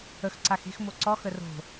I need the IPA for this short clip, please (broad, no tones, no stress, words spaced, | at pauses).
əxǀax e̤x moǀɔxə ro̤